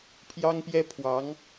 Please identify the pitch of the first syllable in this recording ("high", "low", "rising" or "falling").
high